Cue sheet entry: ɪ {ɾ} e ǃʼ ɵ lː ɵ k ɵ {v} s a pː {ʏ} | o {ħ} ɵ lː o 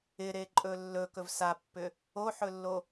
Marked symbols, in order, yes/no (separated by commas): yes, yes, yes, yes